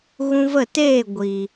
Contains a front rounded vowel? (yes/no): no